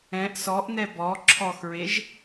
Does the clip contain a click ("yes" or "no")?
yes